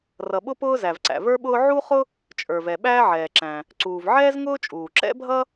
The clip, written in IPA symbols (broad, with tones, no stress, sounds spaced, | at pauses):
r ʌ˩ ɓ ʊ˥ p ʊː˥ z æ˩ v ǀ æ̰˩ v ə˞˥ ɓ ʊː˥ ʕ u˥ χ ʊ˥ | t͡ʃʼ ə˞˩ v ɛ˩ ɓ æː˥ ʕ ɛː˩ ǁ æ̃˩ | ǀ uː˩ v ʕ ɛː˥ z ŋ ʊː˥ t͡ʃʼ uː˩ ǁ ɛ̰˥ bʱ ʌ˥